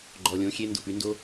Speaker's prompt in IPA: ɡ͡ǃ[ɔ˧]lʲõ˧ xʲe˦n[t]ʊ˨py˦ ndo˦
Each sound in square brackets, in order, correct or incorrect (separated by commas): incorrect, incorrect